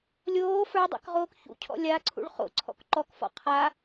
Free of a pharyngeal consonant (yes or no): yes